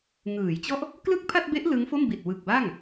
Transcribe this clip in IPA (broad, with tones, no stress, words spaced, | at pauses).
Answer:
ŋɯː˩˦jt͡ɕɔ˥˩ʔ | klɯ˥˩k̚pʰa˥˩t̚be˦˥ʔ lɯ˦˥ŋfo˥˩mbi˨˩t̚ wɯ˨˩k̚ba˥˩ŋ